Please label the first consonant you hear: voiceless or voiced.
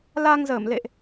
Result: voiced